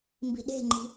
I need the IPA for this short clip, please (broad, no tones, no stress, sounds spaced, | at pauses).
m b i̤ ɗ e̤ ŋ͡ǃ i̤